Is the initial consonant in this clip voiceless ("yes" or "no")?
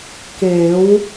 yes